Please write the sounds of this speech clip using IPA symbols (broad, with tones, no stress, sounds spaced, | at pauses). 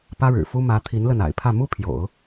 p ä˥ ɻ ɻ̩˨˩ f u˥ m ä˧˥ t̪ʰ i˧˥ n l ə˥˩ n a̰˨˩ ɪ̯ pʰ ä˥˩ m u˥ pʰ j o̰˨˩˦ ʊ̯